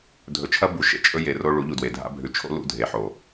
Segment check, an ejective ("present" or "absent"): present